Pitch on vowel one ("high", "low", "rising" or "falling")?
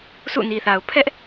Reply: falling